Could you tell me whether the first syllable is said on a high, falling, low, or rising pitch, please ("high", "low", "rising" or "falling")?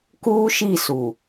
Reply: high